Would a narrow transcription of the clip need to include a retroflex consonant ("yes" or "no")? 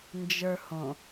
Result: no